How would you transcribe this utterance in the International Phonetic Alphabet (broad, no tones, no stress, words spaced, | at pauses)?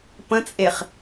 pə̃t͡sʼeχ